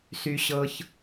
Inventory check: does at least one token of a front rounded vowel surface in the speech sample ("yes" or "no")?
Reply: yes